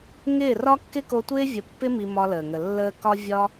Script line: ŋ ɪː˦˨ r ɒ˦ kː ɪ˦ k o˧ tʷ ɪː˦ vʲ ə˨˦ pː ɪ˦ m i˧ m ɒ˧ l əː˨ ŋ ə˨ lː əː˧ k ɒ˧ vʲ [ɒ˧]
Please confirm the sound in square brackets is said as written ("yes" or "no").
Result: yes